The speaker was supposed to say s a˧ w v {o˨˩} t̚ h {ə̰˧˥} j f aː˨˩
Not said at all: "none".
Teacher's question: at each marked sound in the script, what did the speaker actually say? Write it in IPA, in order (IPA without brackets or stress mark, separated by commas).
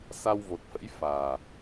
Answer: o˨˩, ə̰˧˥